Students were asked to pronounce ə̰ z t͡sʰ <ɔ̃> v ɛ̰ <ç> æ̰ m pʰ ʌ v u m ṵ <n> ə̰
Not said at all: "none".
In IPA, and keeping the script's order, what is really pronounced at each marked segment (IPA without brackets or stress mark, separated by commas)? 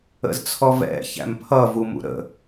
ɔ, ç, ɾ